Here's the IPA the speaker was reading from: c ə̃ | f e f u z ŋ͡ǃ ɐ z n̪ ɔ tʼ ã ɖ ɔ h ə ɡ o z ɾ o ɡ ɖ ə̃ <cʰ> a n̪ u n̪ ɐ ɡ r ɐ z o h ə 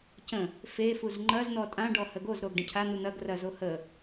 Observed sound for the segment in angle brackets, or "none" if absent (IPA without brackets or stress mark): cʰ